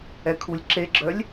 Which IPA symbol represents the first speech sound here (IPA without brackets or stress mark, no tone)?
ɛ